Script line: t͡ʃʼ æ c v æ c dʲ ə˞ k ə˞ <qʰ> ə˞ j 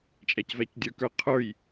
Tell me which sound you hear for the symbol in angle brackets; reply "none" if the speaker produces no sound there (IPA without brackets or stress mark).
qʰ